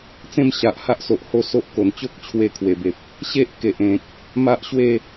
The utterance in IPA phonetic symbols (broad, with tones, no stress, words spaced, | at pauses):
t͡sẽ˥˧mɕa˨ʔ ha˦ʔso˨ʔ ho˥˧so˦ʔko˨˩n t͡ɕo˦k̚t͡ɕʰwe˧kʰwe˨˩be˨p̚ | ɕe˦ʔke˨ʔẽ˨k̚ | ma˦ʔɕwe˥˧